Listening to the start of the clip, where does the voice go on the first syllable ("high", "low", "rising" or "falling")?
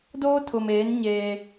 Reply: high